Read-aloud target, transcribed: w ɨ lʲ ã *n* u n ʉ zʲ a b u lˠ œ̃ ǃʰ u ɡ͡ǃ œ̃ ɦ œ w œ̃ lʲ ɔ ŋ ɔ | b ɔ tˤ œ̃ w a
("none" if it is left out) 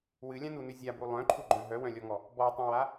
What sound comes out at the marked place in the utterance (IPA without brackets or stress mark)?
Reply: n